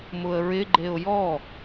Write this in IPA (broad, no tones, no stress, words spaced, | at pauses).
mʊə̯ɹɪ ɡ͡ǃeʊ̯jɔ